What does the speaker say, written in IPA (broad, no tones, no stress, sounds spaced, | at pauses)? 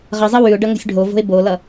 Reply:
ʁ ʌ zˤ ʌ w ʉ ʊ̯ ɖ ʌ ŋ o̤ sʲ ɖʱ o v o̤ ɪ̯ b o l ʌ